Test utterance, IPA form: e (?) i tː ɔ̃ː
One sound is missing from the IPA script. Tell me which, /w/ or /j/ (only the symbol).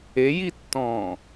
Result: j